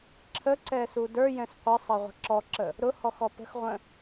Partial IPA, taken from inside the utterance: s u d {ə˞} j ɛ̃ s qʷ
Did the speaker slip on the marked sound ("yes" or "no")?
no